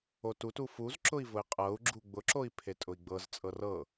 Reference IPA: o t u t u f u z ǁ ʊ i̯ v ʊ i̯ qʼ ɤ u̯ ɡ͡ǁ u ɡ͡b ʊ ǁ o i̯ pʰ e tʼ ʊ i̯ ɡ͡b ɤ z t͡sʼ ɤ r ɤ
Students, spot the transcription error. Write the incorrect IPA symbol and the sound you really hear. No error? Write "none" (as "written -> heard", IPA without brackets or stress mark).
none